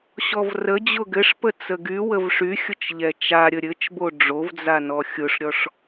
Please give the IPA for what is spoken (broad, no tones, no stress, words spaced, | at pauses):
ɕɔvrə d͡ʑʊɡɘʂpə t͡səɡy wəvʂyxʲʊt͡ʃʎɛ t͡ʃaɾʲə ɾʲɘt͡ʃbo ɖ͡ʐovd͡zanɔ xʲʊʂɾʲɔʂ